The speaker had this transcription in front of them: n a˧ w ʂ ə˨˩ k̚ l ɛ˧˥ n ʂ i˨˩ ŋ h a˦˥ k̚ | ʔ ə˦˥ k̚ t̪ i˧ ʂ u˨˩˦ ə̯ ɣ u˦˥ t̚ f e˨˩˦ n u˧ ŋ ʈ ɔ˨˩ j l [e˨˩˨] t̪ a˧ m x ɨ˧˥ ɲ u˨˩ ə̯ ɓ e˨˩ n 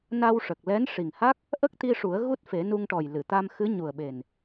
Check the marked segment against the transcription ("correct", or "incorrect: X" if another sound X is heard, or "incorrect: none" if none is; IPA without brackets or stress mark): incorrect: ɨ˨˩˨